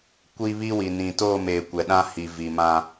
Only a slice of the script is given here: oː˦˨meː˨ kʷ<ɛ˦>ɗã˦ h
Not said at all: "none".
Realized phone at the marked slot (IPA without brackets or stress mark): ɛ˨